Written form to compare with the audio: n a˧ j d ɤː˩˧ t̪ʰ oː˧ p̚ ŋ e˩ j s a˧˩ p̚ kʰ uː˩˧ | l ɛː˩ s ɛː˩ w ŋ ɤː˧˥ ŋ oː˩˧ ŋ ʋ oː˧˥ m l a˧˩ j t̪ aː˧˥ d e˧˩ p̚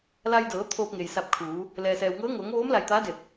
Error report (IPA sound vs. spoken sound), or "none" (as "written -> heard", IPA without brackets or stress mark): n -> l